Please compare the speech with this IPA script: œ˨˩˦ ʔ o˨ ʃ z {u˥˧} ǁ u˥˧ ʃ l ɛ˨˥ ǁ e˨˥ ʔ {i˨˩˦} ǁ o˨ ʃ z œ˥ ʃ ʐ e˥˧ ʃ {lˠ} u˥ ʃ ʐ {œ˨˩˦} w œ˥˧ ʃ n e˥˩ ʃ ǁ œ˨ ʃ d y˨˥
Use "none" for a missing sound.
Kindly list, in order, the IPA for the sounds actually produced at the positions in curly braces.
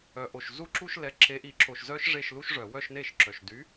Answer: u˥˧, i˨˩˦, l, œ˨˩˦

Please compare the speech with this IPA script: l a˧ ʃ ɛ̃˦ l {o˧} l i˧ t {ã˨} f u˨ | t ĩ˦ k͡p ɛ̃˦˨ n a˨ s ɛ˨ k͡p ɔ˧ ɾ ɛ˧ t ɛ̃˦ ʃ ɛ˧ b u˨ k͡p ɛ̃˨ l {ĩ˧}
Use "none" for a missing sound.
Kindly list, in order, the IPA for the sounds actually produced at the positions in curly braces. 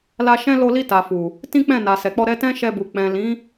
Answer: o˧, a˨, ĩ˨˦

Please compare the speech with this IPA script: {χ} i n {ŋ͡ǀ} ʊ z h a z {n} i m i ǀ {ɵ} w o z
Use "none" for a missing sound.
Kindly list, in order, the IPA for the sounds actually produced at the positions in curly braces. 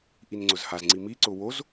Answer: ʔ, ŋ͡ǀ, ŋ͡ǀ, ʊ

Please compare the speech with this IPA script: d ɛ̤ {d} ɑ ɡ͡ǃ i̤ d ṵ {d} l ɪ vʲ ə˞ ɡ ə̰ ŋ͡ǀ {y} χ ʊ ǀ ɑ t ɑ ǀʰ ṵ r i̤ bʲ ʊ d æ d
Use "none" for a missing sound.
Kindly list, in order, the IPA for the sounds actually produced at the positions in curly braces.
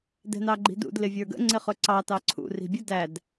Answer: n, d, ɪ

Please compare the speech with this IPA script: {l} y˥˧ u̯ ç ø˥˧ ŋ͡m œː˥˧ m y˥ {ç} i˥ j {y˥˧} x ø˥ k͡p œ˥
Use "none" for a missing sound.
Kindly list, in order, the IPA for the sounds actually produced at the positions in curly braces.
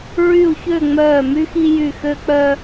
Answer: ɹ, x, y˥˧

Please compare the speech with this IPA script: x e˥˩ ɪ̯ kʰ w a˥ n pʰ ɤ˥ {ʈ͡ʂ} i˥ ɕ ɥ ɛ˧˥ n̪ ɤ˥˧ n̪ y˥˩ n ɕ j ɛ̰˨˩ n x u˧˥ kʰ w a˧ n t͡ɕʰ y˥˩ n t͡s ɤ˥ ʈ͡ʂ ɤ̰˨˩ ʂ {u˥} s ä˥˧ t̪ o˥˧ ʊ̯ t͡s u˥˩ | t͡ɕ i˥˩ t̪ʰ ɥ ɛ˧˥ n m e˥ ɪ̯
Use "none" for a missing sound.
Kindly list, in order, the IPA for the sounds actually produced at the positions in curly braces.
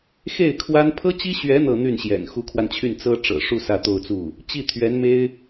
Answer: t͡ɕ, u˥˧

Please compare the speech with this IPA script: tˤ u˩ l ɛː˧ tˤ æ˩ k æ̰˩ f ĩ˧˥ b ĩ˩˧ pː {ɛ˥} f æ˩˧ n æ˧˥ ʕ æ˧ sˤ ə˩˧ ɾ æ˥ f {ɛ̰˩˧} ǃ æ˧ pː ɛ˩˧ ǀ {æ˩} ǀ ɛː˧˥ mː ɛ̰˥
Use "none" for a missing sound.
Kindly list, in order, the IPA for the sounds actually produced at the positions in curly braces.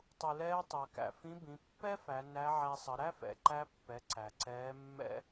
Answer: ɛ˥, ɛ̰˩, æ˩

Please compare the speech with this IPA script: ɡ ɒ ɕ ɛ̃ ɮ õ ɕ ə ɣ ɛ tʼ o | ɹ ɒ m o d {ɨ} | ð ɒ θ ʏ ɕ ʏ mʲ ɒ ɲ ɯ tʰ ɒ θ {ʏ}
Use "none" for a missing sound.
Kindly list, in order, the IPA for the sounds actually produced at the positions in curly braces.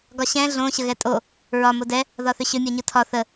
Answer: ɛ, ə

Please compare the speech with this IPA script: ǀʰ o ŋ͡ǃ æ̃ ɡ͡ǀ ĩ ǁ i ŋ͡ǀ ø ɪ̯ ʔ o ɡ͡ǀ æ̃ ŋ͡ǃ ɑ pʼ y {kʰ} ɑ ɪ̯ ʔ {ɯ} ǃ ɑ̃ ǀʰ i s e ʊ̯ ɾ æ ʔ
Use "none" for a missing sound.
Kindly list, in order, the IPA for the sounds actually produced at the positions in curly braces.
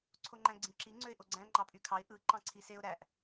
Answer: kʰ, ɯ

